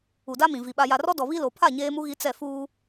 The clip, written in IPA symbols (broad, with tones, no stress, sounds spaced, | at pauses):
u˨ d a˦ m ĩ˨ v i˨ ɓ a˨ j a˨ r ɔ˦ d ɔ˨ β i˦ l o˨ pʰ a˦˨ ɲ eː˦ m u˦ ɣ i˦ t͡s ɛ˦˨ f uː˦